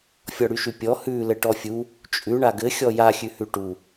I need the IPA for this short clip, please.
fʲ ɔ ɽ y ʃ y pʲ ɔ h ʉ l ɘ ʈ ɔ fʲ u | t͡ʃʼ ʉ ɳ a ɡ ɘ xʲ ɔ j a xʲ ʉ h ʉ ʈ u

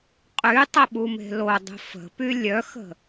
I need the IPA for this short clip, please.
qʼ y tˤ ə ɓ u m e̤ l o dˤ ə̤ f ə̤ p y lʲ œ x ə̤

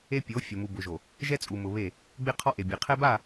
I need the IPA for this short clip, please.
e˦ pʲ o˨˦ fʲ ʊ˨ m u˨ b ʊ˨ ʒ o˨ | ʒ ɛ˦ t͡sʼ u˨ m ʊ˨ β e˦˨ | ɡ͡b e˦ qʰ ɔ˦ ʔ e˨ bʲ e˨ qʰ ɛ˦ b a˦˨

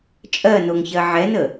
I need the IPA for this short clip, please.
t͡ʃʼ ɜ n o ŋ ç ɜ ʕ ɛ n ə

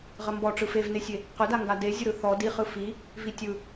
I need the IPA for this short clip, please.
ʁ ə m b ɔ ʈ͡ʂ ɯ f e v n e sʲ e | q ʏ d a ŋ ɡ a d e zʲ ə ɾ ɯ θ ɔ d i χ ɯ f i | v i tʲ ɯ

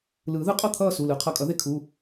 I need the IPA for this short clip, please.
l ɯː˨˩˦ ð ɯ˨˥ qʼ ʌ˥˨ t̪ʰ ʌː˥˨ s u˩˧˩ l ɯ˨˩˦ qʰ ʌ˩˧˩ kʼ ʌ˨˩˦ ð e˧ kʰ u˩˧˩

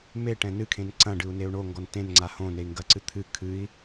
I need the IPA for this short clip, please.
m e ʈ ɛ̃ n ɨ kʰ ẽ n ǀ ɐ̃ ɖ ɨ u̯ n e u̯ ɳ o ŋ ɡ ɔ n t ẽ n ŋ͡ǀ a h õ n e i̯ ŋ ɡ ɐ ǀ ɨ t̪ʰ ɨ kʰ ɨ i̯

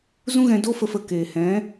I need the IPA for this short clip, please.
z ũ˦ ɣ ɛ̃˧ d o˧ f ə˨ f ə˨ k eː˨ h ɛ̃˨˦

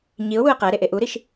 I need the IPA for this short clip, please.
ɲ i ʊ̯ w u ə̯ q æ ɾ e ʔ e ʔ u ɾ i ʃ

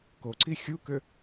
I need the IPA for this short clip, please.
k o ǀ i xʲ u k ʏ

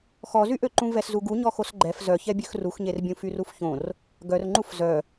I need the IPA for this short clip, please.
x ɔ z y ʔ ø ǃ ũ v ɛ s z u ɡ u ɲ ɔ x o s ɡ͡ǃ ɛ f z œ ç ɛ bʲ ø x r u x ɲ e r bʲ ũ f y r u f ç õ r | ɡ œ r ŋ͡ǃ u f z œ

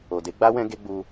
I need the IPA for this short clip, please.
o˨ d e˨˦ ɡ͡b a˦ w ɛ̃˦ ɡ e˦ ɡ͡b u˧

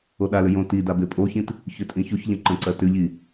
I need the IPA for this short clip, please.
o ɗ a l ʏ j õ t i d a b e pʼ o ç ĩ t | ç ʏ tʼ ĩ ç o ç ʎ ə̃ ǃ ə̃ ǀ ɜ t ʏ ʎ i

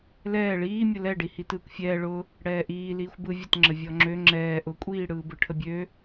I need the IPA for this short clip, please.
l ɛː ɭ iː mʲ ʊ l ɛ ɖ i h i t ɯː kʷ fʲ ɛː ɭ ʊ | ɽ ɛː ʔ iː l iː xʷ b ɯ vʲ ə t ŋ͡ǁ ə vʲ ɔ ŋ͡ǁ ø ŋ͡ǁ ɛː ʔ ʊ kʷʼ iː ɽ ɯː b ɯ ʈʰ ə bʲ ø

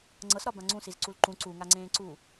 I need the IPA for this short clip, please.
ŋ͡ǀ ɤ s ɾ ɒ b ã ŋ͡ǀ ũ s i z ǀ u l ǃ ũ ǀ u ŋ a ŋ͡ǀ ẽː ǀ uː

